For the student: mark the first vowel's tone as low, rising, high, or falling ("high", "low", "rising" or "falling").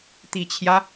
low